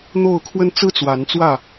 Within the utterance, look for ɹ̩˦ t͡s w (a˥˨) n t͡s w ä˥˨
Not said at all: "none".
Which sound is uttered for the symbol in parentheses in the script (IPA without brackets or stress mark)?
a˨˦